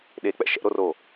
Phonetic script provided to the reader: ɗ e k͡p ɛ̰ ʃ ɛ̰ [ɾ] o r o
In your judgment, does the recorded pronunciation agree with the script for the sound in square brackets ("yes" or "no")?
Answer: yes